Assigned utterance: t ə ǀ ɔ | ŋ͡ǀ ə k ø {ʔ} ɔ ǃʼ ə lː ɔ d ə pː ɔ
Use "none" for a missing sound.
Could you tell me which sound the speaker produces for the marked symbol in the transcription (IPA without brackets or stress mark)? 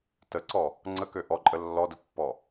ʔ